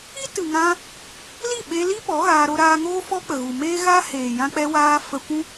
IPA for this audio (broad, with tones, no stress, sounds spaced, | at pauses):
i˦ t ɨ˨ ŋ ã˧ | l i˦˨ ɓ e˧ l i˦ p ɔ˨˦ ɣ aː˧ ɾ o˧ ɾ aː˧ ŋ oː˦ f ɔ˦ k͡p ə˨ ɣ u˨ m eː˦ ɣ a˦ h eː˨ j ã˧ k͡p ɛ˧ w aː˧ f ə˧ kʷ ũ˦